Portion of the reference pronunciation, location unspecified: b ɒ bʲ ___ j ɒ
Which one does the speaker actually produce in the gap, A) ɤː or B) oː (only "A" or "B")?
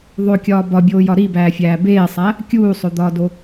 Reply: B